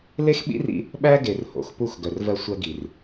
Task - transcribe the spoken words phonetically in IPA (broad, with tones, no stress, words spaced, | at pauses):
le˦xɓḭ˦r ḭ˦ | ɓæ˦ɡe˨r ho̰˨xpu˦˨xɡœ˨r vɜ˦sʷɜ˦ ɡi˨r